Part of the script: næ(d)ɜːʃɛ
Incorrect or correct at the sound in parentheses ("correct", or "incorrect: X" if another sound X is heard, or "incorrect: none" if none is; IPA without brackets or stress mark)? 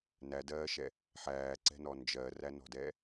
correct